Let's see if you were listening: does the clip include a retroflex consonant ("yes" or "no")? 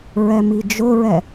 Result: no